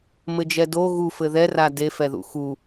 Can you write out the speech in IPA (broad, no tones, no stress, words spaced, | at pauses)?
mɘd͡ʒɛdo ɣufɘ ðɛra defɛðṵ xu